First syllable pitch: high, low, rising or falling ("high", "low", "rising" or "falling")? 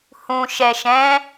low